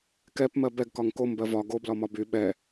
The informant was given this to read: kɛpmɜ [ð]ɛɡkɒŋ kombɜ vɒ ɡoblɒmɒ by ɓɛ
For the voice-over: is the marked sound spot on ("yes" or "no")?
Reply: no